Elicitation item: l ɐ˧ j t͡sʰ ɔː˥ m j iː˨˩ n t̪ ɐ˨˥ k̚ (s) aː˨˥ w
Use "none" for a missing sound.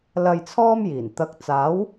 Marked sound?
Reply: t͡s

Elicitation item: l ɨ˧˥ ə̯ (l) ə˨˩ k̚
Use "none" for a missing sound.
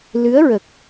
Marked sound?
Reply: ɹ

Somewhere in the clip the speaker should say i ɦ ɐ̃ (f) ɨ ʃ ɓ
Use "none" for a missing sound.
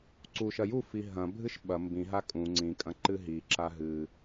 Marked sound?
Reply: bʱ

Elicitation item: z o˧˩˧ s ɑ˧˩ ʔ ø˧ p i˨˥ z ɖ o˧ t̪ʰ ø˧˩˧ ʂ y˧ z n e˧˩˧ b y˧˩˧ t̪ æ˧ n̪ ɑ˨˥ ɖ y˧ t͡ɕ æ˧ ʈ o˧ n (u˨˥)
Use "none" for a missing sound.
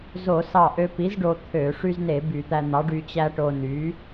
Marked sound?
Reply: y˨˥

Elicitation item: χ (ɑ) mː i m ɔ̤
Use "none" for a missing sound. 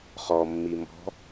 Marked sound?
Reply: ɔ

